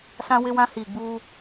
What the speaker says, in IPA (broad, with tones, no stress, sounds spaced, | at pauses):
s ã˦ w ɪ˦ w ã˦ h iː˨ ɡ͡b uː˦